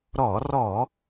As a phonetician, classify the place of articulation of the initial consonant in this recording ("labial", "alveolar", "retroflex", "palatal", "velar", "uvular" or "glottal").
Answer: alveolar